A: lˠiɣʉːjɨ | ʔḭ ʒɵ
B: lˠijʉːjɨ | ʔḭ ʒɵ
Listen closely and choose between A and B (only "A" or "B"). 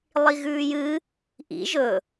A